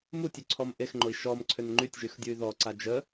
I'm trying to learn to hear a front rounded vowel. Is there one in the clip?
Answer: yes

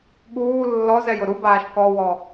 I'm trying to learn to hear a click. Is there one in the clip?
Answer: no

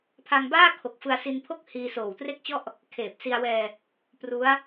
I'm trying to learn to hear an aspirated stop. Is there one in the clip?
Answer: yes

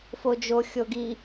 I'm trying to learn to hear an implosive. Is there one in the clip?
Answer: no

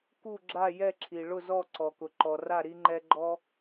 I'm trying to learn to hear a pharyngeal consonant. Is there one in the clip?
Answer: no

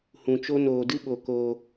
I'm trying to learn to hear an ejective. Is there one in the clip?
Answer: no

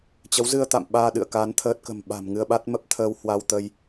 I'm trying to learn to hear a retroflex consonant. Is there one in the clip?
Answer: no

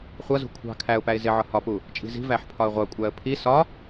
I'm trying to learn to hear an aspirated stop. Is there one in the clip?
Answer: yes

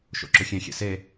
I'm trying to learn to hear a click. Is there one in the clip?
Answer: yes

